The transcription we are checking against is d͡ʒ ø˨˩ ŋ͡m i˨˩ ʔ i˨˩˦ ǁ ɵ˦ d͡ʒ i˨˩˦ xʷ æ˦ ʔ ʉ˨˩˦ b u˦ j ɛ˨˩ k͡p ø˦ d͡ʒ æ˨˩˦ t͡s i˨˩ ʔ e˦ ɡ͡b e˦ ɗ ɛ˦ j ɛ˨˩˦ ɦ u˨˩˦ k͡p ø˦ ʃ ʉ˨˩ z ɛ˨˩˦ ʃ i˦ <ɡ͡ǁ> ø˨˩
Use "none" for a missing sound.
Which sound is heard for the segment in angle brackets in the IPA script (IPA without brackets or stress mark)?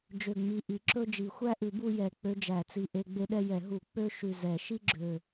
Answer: ɡ͡ǁ